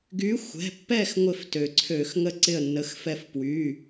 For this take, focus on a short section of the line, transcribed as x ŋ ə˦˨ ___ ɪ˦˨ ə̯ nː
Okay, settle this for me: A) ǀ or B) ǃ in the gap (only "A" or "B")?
A